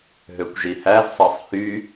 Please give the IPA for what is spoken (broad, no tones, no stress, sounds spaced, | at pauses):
ɦ ø kʷ ʒ i h æ z sˤ ɑ sˤ h y